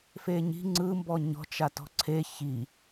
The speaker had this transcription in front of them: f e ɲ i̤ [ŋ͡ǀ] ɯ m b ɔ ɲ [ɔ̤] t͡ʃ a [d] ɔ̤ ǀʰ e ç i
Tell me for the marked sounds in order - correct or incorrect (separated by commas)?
correct, correct, incorrect